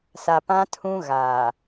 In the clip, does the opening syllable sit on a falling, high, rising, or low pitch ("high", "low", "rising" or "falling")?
low